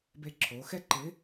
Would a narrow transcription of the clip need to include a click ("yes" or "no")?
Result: yes